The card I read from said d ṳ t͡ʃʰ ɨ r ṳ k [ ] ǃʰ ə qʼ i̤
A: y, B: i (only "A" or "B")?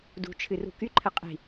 A